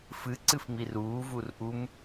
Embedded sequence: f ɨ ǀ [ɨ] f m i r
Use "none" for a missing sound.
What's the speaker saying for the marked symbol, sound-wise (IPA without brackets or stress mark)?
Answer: ɨ